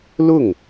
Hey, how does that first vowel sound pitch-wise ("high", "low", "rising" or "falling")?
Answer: falling